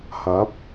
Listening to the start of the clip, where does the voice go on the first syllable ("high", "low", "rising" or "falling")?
rising